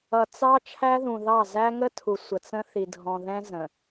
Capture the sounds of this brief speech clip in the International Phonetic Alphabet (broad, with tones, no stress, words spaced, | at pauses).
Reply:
ʌ˨t͡sɑ˦ t͡ʃʰæ˦ðũ˨ðɑ˦˨ zæ˦ŋə˦tʰu˨ sʷə˨t͡sə̃˦ θi˨dʱɔ̃˨ðɛ̃˦ zə̃˨